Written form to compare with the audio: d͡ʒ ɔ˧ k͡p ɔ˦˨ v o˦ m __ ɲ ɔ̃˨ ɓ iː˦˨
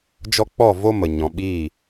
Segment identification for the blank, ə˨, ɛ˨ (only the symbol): ə˨